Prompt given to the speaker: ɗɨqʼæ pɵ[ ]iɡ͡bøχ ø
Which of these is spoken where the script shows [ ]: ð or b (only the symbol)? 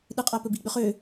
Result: b